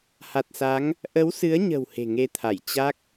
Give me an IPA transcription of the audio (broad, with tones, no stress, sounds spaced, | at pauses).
h a˨˩ t̚ s a˨˦ ŋ | ʔ ə˨˦ w s ɨ˨˦ ə̯ ɲ ə̤˨˩ w h e̤˨˩ ŋ e˨˦ t̪ʰ a˧˩ j t͡ɕ a˦˥ k̚